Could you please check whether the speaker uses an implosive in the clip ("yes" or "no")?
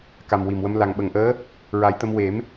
yes